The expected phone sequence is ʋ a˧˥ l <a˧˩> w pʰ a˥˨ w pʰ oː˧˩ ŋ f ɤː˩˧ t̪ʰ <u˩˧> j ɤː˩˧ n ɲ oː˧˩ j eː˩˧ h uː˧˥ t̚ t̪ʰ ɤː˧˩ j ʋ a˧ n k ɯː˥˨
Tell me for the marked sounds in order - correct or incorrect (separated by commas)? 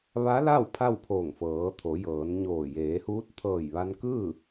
incorrect, incorrect